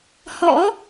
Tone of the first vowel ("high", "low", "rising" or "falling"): rising